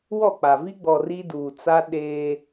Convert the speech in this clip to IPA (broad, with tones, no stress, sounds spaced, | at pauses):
w ɔ˦˨ k͡p a˨ v i˦ ɡ͡b ɔ˨ r i˦ d uː˨ t͡s a˦ ɗ eː˦